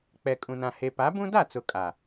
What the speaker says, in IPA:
k͡p ɛ˨ kʼ ũ˨ n ã˨ h e˨ p a˨˦ b ũ˦ d a˦˨ t͡s ʊ˨ kʼ a˨

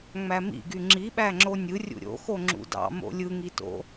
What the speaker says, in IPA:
ŋ͡m æ m ḭ ɡ y ŋ͡ǁ i ɓ æ ŋ͡ǁ o nʲ ɯ rʲ ṵ ɾʲ o̰ x o ŋ͡ǁ ṵ d ɑ̰ m o̰ lʲ ɯ ŋ i t o̰

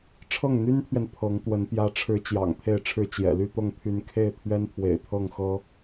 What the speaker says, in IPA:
ʈ͡ʂʰ ɤ˥˩ ŋ n̪ y˥ n t̪ʰ ɥ ɛ˨ n pʰ ɤ˧˥ ŋ t̪ w ə˧˥ n p j ä˧˥ ʈ͡ʂʰ ɻ̩˧˥ t͡ɕ j ɑ̰˨˩ ŋ t̪ʰ e˥˧ ɪ̯ ʈ͡ʂʰ ɻ̩˥˩ t͡ɕ j ɛ̰˨˩ l y˥˧ t̪ ɤ˥˩ ŋ pʰ y˧˥ n kʰ e˥˩ ɪ̯ t̪ʰ ɥ ɛ˥ n pʰ w ḛ˨˩ ɪ̯ t̪ʰ ɤ˥˩ ŋ x ɤ˥

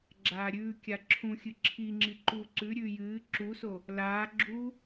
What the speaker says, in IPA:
ɡ͡ǁ aː ɾʲ ʉː kʲ a ǁʰ ũ xʲ ɨ ǁʰ i ŋ͡ǁ i ǃ uː ǀ ʉ ɾʲ ʉː j ɨː ǁ u s o | l aː ɡ͡ǁ u

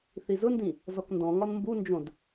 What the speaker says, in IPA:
θ i z ʊ n d ĩ | z ɔ k n d ɔ̃ ŋ ɒ n m b u n d͡ʒ õ d

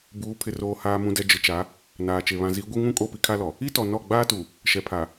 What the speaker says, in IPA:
b uː˨˦ pʰ ɪ˨ r oː˨ h aː˨ m ũ˨ d ɛ˨ d͡ʒ ɪ˨ t͡ʃ a˨˦ | n aː˨ t͡ʃ e˨ β ã˨ z i˨˦ ɡʷ i˦ ŋ ũ˦ kʼ o˦˨ p i˦ kʰ a˦ l ɔ˨ | i˦ t ɔ˨ n ɔ˦˨ ɡ͡b aː˦ t u˨ | ʃ ɛ˨ pʰ a˨

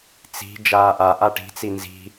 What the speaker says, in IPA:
t͡s i̤ d͡ʒ aː ʔ a ʔ a ʈ i̤ t͡s i n z i̤

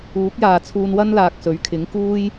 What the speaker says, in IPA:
uː˨˥ k̚ j aː˨ t͡sʰ uː˧ n w ɐ˥ n l aː˨ k̚ s ɵ˨˥ ɥ kʰ ɪ˨˥ ŋ k uː˥ j

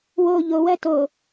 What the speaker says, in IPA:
w o ʎ o w ɜ t o

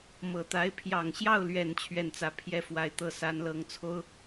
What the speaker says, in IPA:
m ɤ˨˩ t̪ a˧˥ ɪ̯ pʰ j ɑ˨˩ ŋ ɕ j ɑ˥˩ ʊ̯ l ɥ ɛ˨˩ n t͡ɕʰ ɥ ɛ˥˩ n t͡s ä˧˥ pʰ j ɛ˥˩ f w a˨˩ ɪ̯ t̪ ɤ˥˩ s a˧˥ n l ɤ˧˥ ŋ t͡sʰ o˥ ʊ̯

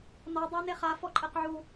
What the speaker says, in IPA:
n ɔ dˤ a n e χ a f ɔ ǃʼ e q ʕ u

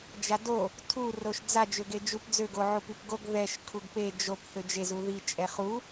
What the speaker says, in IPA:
d͡ʒ a d o | tʰ u r o ʃ d͡z a d͡ʒ ø ɡ e d͡ʒ u p d͡z ø ɡ o ʕ u p i p ɡ o ɡ ð ɛ ʃ kʰ u ɡ p e d͡ʒ o p θ ø d͡ʒ e z u ð i t͡ʃʼ ɛ χ u

